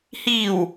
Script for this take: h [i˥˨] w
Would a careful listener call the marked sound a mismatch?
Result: yes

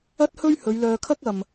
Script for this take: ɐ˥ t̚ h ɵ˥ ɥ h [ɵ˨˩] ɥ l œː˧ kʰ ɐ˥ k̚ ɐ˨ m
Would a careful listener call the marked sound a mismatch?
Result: yes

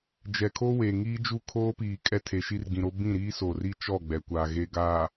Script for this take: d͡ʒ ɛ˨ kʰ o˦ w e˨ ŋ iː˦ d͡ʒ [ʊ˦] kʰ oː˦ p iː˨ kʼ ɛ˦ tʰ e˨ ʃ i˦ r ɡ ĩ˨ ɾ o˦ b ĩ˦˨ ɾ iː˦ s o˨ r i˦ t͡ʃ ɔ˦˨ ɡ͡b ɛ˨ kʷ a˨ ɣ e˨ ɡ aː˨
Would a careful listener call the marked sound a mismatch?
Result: yes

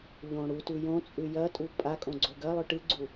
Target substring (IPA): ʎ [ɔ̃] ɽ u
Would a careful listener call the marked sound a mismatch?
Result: yes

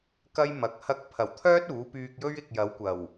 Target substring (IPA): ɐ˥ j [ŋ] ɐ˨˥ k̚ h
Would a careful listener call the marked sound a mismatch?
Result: yes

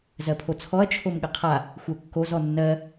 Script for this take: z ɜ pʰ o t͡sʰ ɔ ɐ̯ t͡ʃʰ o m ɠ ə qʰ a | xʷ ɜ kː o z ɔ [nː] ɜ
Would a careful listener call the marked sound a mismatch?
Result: no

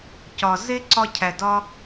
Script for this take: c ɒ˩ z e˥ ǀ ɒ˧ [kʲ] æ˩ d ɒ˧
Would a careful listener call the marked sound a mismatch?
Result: yes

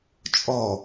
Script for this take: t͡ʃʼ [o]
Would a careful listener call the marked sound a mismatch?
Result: yes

